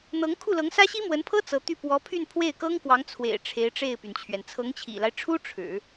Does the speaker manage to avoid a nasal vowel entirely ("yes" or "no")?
yes